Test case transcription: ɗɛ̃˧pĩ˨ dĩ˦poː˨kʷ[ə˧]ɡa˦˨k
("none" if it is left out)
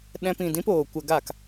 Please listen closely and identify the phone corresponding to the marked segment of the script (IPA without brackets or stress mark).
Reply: ə˧